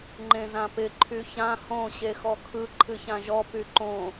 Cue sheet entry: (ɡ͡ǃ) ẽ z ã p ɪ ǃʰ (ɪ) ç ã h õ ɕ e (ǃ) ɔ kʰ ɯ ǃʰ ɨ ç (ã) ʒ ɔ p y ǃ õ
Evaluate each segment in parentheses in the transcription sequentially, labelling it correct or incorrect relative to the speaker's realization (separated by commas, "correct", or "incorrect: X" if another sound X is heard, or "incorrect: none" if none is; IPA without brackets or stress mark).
incorrect: ŋ͡ǃ, incorrect: y, incorrect: x, correct